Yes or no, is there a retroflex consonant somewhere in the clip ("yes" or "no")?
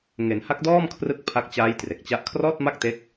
no